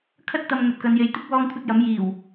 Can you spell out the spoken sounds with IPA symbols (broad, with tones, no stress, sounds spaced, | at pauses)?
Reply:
kʰ ɐ˥ t̚ t̪ ɐ˧ m ŋ ɵ˧ t̚ k ɐ˨˧ n j e˨˧ j t̪ ɪ˥ k̚ w ɔː˥ ŋ kʷʰ ɐ˥ t̚ j ɐ˨˥ m j iː˨˩ w